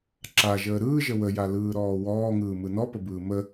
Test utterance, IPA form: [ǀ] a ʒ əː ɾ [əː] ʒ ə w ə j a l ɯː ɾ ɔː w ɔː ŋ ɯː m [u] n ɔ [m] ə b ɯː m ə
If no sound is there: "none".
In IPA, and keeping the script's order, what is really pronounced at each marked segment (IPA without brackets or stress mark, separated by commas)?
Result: ǁ, ɯː, ɯ, p